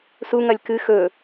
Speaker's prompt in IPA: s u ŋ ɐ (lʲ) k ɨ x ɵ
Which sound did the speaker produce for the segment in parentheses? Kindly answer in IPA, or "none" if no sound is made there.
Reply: lʲ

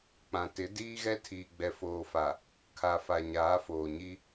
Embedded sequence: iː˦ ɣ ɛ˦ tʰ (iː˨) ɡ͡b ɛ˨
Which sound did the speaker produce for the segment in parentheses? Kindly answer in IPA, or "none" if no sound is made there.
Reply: iː˨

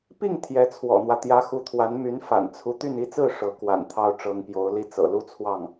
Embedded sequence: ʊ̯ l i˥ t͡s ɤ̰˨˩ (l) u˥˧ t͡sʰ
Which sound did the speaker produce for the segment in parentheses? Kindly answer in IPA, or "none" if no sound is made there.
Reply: l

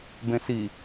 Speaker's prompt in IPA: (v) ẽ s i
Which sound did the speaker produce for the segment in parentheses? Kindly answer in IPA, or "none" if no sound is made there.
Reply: b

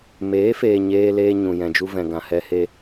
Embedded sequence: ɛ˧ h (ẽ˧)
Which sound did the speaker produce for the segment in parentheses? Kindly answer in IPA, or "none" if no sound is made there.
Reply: e˧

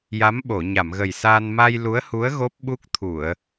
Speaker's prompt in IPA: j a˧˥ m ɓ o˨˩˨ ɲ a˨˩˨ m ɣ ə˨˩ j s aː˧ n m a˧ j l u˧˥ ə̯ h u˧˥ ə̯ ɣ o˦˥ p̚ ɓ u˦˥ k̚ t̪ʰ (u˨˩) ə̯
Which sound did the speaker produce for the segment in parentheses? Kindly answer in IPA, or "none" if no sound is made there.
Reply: u˨˩˨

